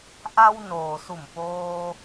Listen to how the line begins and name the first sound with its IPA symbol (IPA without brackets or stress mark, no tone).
ʔ